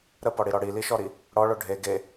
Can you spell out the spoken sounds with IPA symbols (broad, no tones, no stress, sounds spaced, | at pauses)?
ɾ ə p ɔ ɽ i ɾ ɔ ɽ i l i ʃ ɔ ɾ i | ɽ ɔ ɭ o ɖʱ e ɡ e